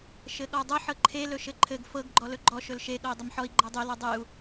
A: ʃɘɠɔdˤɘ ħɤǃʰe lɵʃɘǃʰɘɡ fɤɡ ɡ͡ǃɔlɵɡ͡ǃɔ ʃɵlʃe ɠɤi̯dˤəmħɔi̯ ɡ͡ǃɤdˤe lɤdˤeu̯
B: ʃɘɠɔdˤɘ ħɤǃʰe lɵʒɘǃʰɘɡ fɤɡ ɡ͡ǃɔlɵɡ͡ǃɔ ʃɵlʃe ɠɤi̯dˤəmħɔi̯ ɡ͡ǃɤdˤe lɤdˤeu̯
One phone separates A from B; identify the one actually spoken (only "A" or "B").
A